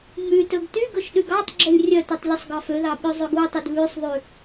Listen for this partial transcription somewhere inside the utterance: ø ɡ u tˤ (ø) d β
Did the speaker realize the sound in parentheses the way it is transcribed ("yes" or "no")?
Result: no